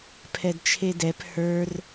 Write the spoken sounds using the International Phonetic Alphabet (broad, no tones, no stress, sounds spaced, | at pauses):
pʰ ɛ d t͡ʃʰ e d ɛ p h ə˞ r